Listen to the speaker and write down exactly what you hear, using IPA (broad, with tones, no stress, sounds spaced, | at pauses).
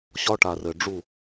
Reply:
ɕ ɒ˦ ʈ a˨ r ɘ˨ ɖ͡ʐ u˦˨